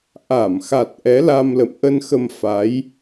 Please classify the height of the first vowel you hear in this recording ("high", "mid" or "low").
low